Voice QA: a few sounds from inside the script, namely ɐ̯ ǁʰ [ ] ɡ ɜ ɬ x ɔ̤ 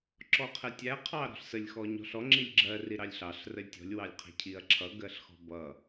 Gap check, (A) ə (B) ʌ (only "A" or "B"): B